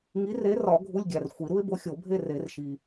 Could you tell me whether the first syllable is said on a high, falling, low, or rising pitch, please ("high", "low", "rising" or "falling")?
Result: rising